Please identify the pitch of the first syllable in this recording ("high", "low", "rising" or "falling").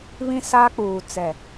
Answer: high